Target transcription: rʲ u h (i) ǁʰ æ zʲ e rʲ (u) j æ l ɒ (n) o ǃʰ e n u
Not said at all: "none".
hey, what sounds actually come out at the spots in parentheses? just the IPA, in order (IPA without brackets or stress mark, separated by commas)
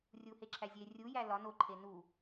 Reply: e, u, n